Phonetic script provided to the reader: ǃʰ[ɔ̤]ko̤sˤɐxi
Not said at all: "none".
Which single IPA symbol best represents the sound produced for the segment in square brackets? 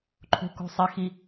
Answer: o̤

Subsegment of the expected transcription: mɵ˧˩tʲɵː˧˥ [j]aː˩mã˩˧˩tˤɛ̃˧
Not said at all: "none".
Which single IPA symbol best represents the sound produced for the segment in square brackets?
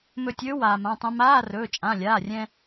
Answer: w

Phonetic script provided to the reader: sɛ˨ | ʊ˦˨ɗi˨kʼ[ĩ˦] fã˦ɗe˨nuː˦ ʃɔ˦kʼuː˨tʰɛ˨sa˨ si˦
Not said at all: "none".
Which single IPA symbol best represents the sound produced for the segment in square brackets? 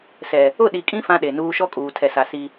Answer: ĩ˦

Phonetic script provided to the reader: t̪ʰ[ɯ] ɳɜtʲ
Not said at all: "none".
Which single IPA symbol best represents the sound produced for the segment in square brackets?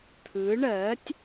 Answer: ɯ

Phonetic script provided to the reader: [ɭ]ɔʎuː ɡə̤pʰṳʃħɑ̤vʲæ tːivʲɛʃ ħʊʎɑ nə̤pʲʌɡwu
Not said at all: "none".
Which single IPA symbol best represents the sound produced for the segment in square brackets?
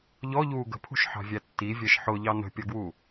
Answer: ʎ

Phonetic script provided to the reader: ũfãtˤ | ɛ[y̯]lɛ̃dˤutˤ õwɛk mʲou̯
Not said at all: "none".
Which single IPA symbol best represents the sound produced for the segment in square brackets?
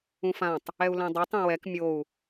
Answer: u̯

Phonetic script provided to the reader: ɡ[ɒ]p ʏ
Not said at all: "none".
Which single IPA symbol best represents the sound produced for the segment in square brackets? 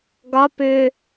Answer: ɒ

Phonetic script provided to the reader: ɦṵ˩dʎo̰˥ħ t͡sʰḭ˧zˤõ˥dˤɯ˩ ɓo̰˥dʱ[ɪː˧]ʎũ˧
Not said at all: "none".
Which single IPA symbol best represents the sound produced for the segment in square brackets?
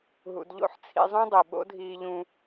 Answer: iː˧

